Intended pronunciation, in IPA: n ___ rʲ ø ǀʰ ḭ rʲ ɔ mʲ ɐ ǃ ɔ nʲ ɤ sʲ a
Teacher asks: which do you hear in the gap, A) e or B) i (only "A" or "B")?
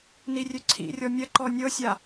B